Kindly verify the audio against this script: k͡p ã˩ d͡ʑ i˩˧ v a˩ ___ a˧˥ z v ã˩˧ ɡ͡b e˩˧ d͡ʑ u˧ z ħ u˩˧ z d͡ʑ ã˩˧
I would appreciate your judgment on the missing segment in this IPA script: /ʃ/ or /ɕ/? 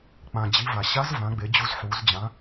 ɕ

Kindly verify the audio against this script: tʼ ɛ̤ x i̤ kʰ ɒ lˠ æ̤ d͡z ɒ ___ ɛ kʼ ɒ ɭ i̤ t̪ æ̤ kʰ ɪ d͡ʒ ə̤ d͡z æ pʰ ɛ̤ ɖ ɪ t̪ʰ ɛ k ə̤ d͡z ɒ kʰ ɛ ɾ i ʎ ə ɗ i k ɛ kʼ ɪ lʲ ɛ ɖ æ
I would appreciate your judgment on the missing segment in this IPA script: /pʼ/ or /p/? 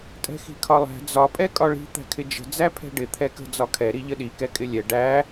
pʼ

